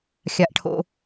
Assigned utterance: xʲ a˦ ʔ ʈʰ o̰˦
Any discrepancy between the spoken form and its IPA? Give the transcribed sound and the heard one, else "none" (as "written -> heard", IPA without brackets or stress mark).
none